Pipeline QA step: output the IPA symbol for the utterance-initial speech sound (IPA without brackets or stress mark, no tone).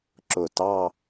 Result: ǁ